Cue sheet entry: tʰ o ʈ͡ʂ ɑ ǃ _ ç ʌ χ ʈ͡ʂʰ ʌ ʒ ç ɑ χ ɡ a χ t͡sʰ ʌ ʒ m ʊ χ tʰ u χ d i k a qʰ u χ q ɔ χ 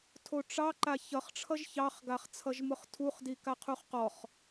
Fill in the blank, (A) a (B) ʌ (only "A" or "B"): A